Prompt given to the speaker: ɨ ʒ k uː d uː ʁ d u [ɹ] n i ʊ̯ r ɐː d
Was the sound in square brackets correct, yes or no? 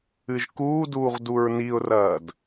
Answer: yes